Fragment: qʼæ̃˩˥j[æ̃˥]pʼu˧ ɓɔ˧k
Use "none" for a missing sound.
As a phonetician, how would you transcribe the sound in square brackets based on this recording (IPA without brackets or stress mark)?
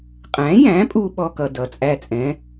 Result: æ̃˩˥